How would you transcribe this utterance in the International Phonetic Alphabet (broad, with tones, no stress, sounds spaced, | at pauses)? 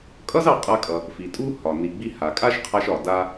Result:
kʼ ʌ˥ z ɑ˧ qʼ a˧ kʼ ʌ˩ | f i˩ tʼ u˥ h ɒ˩ n i˩ ɡ͡b i˧ h a˩ kʼ a˥ ʃ qʰ a˧ ʃ ɒ˩ d a˧